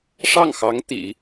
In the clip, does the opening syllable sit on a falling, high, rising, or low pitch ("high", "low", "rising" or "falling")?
falling